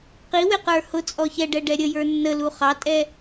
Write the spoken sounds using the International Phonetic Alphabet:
q i w ɪ q ə˞ h ʊ t͡sʼ ɔ ç ɛ ɖ ɛ ɖ ɛ ɾʲ ə j ə˞ nː ə l u χ ɑ tʼ ɛ

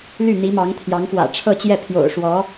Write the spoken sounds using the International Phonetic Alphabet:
l y˥˩ n̪ i˧˥ m ɑ˧˥ ŋ t̪ʰ j ɑ˧˥ ŋ f w ä̰˨˩ ʈ͡ʂʰ ɤ˥˧ t͡ɕ j ɛ˥˩ pʰ j o̰˨˩ ʊ̯ ʂ w ɔ˧˥

